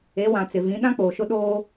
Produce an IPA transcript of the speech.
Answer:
e˨˦ w ã˨ t͡s ɪ˨ v ĩ˨˦ ɗ ã˦ k͡p oː˨ ʃ ʊ˦ ɗ oː˦

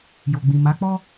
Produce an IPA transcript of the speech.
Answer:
j o˨ ɡ͡b ĩ˨ m a˨˦ k͡p ɔ˦

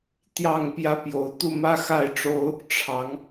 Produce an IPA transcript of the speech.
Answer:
t̪ j ɑ˥˨ ŋ p j ä˦ p j o˨˦ ʊ̯ t̪ u˥˨ m ä˦ x a˥˨ ɪ̯ ʈ͡ʂ o˦ ʊ̯ | ʈ͡ʂʰ ɑ˨˦ ŋ

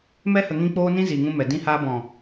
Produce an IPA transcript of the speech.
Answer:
m ɛ˦ h ə˧ ŋ ĩ˦ k͡p oː˦ n ĩ˦ z i˨ ŋ ũ˧ m ɛ˨ d ĩ˦ h aː˦ b ɔ̃˨

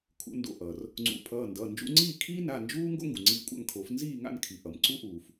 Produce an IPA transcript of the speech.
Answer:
kʰ ṵ˨˩˦ n d o̰˩˧˩ ʔ ʌ˩ r | ŋ͡ǀ ṵ˨˩˦ pʰ ʌː˩˧˩ n d ʌː˩˧˩ n d͡ʒ ṵ˧ ŋ͡ǀ iː˥˨ kʰ iː˥ n a˩˧˩ n d͡ʒ uː˥ ŋ ɡ o̰˥ ŋ ɡ u˩ ŋ͡ǀ iː˧ kʷʼ a̰˥˨ ŋ kʰ o˨˩˦ f n z iː˥˨ ŋ a̰˥˨ n kʰ i˩ ʔ ʌ˩ m ǀ u˥ ʔ uː˩ f

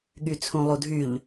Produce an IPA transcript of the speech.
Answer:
ɠ y t͡sʰ ũ lˠ u dʱ y ʎ

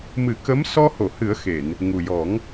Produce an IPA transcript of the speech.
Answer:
m ɨ˨˩˦ k ə˧˥ m s ɔ˧ h o˨˩˨ h ɨ˨˩˦ ə̯ x e˨˩˨ n | ŋ u˨˩ j ɔ˨˩˦ ŋ

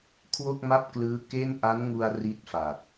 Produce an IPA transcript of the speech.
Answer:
kʰ w o˥˩ k̚ m a˥˩ p̚ k l ɯː˦˥ k e˥˩ n ʔ a˦˥ n ŋ u˧ a̯ r i˥˩ t̚ f a˨˩ k̚

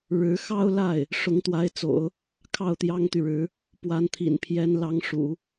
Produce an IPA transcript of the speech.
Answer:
ɻ ɻ̩˧˥ x ɑ˥ ʊ̯ l a˥˩ ɪ̯ | ʂ ʊ˧˥ ŋ t̪ w a˧˥ ɪ̯ t͡s o̰˨˩˦ ʊ̯ | kʰ ɑ˥˩ ʊ̯ t̪ j ɑ˥ ŋ t̪ y˨ ɻ ɻ̩˧˥ | p w a˧˥ n t̪ʰ ḭ˨˩ n pʰ j ɛ˧˥ n l ɑ˧˥ ŋ ʂ ṵ˨˩˦

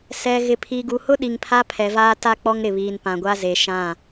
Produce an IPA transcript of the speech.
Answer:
s ɛ˨ ɣ ɪ˨ pʰ iː˨ ɡ u˨ h ʊ˦ ɗ i˨ ŋ pʰ a˦ pʰ ɛ˨ v aː˦ t a˦ k͡p ɔ˦ ŋ ɾ ɪ˨ β iː˨ n p ã˨ ɡʷ a˦ z e˨ ʃ ã˦˨

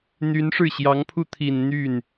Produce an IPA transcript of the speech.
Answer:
n̪ y˧˥ n ʂ ɻ̩˥˩ ɕ j ɑ˧˥ ŋ pʰ u˥˩ t̪ʰ i˨˩ n n̪ y˥˩ n

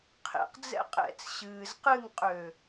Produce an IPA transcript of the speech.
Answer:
qʰ ḛ q d͡z ɛ̰ qʼ ɛ̰ t͡s ɕ ɨː z q ɨ ŋ qʼ ø

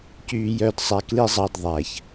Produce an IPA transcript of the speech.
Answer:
c yː˧ j œ˧ d sˤ æ˧ k l i˦ zˤ ɑ˧ d ðˤ æ˨ ç

